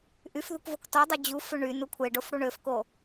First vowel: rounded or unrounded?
rounded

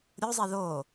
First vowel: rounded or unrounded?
rounded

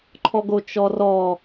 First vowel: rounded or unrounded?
rounded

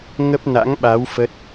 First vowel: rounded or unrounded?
unrounded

